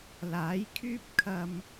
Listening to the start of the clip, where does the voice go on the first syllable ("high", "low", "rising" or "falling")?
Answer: rising